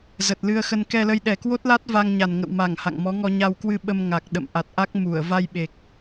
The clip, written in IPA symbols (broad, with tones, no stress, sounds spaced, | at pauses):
z ə˨˩ t̚ l ɨ˧ ə̯ x ə˧ n k ɛ˧ l ə˧ j ɗ ɛ˨˩ k w o˦˥ t̚ l a˦˥ t̚ v a˧ ŋ ɲ a˨˩ n ŋ ə̰˧˨ w m a˧˩ ŋ h a̰˧˨ ŋ m ɔ˨˦ ŋ ɔ˧ ɲ a˧ w k w ɨ˧ ɓ ə˧ m ŋ a˨˩ k̚ ɗ ə̰˧˨ m ʔ a˨˩ t̚ ʔ a˦˥ k̚ m u˧˩ ə̯ v a˧ j ɓ e˨˩ k̚